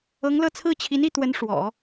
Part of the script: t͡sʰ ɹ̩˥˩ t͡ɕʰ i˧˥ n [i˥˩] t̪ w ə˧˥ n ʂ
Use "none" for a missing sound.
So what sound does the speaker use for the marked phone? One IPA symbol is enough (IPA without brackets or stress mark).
i˥˩